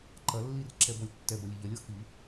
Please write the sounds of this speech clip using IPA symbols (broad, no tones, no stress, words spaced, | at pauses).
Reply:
ǃɐlːir ǁɛbɔlʲtːɛbɐlʲ eʎɐlʲɔ xi